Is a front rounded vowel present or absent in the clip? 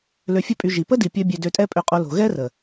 present